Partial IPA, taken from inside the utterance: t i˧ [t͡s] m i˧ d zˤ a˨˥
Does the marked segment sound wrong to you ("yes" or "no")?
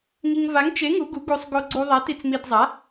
no